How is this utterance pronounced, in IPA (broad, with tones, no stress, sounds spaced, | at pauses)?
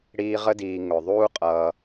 ɽ iː˦ ʁ ə˥ d iː˨ ŋ ʊ˩ ðˤ uː˥ qʼ ʌː˨